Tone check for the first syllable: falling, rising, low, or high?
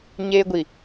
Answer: high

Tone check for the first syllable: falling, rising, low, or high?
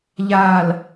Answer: low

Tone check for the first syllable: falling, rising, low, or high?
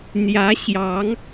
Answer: rising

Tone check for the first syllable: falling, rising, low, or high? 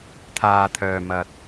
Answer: low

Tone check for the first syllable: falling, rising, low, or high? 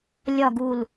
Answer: low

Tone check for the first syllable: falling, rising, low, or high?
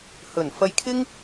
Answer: low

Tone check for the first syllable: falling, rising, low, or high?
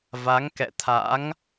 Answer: rising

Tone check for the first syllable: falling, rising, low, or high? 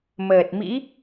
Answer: low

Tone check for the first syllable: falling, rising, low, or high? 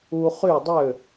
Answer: high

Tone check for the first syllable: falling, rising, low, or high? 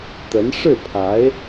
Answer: rising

